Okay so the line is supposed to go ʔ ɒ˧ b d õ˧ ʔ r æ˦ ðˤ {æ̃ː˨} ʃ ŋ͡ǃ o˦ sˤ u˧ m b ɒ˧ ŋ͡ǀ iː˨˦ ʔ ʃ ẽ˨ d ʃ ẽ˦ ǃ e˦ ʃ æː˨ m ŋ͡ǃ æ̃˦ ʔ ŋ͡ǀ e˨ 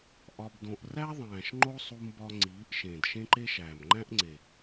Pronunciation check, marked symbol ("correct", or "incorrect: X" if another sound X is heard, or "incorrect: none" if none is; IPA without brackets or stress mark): correct